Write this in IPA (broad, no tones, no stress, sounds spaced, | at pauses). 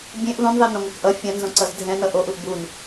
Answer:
bʲ ẽ ʔ ð õ n ðˤ e n õ ŋʷ a k ʔ ʌ fʲ ã n z õ ǀ ʌ z dʱ ɛ̃ n ʌ ʔ o ʔ u ʔ b u n